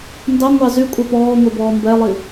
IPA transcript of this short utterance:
n d ɑ ŋʷ ɑ z y kʷʼ ɛ p ɔː ŋʷ e b ɔː m b ɛ lˠ i

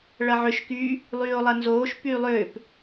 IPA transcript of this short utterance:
ɭ ɐ ʕ ʏ ʃ k yː | lˠ yː o̯ lˠ ɐ n z oː ʃ p yː lˠ ʏː p

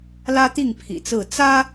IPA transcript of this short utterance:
l ä˦ t̪ i˥˨ ŋ pʰ ḭ˨˩ t͡s ɹ̩˥˨ t͡s ä˦

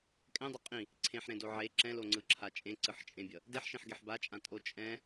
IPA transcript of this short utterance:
kʼ ɛ̃ dˤ o qʼ ĩ | ǀʰ ẽ ħ ɾ ẽ d o ʕ e ǁ ɛ̃ l o ŋ͡ǀ ɯ ǁʰ a t͡ʃʼ ẽ ǀ ɯ ħ t͡ʃʼ ẽ bʲ ʌ | d e ħ ʃ ẽ ħ ɡ e ħ b a t͡ʃʼ ã tʼ o t͡ʃʼ ɛ̃

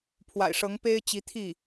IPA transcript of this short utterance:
pʰ w a̰˨˩ ɪ̯ ʂ ɤ˧˥ ŋ p e˥ ɪ̯ t͡ɕ i˧˥ t̪ʰ i˥˩

